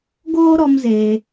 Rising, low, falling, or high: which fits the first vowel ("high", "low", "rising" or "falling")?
high